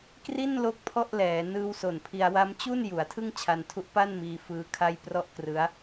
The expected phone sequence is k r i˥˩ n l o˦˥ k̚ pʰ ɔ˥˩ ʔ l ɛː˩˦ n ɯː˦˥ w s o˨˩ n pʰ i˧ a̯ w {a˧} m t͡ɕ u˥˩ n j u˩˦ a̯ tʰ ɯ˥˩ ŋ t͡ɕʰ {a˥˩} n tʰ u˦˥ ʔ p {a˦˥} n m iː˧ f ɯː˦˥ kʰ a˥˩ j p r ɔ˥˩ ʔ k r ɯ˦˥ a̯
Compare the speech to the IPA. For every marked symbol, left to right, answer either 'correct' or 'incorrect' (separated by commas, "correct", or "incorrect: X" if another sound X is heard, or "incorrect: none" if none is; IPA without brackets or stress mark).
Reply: incorrect: a˦˥, incorrect: a˧, incorrect: a˥˩